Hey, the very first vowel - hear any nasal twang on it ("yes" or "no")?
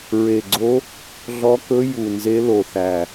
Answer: no